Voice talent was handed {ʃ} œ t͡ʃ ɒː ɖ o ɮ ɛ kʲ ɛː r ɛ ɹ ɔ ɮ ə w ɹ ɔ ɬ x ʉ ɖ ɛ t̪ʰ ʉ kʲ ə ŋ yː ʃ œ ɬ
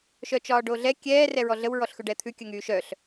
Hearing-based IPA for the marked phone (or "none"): ʃ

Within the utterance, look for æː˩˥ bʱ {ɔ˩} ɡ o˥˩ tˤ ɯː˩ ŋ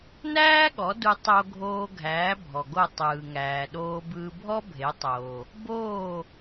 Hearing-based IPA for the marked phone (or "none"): ɔ˩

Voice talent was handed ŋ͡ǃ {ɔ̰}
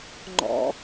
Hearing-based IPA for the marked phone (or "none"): ɔ̰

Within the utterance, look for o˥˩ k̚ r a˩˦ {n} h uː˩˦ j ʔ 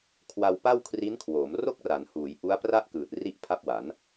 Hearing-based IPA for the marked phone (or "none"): n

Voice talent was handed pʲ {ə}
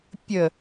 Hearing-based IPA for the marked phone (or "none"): ə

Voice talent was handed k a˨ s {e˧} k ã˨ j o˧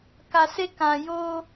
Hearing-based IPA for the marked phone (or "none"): e˧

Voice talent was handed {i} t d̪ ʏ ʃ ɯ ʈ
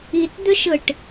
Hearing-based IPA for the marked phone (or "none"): i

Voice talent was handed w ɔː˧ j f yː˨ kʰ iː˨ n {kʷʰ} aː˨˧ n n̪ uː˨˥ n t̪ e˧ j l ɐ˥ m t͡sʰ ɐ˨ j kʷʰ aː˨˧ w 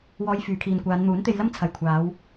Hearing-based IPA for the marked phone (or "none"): kʷ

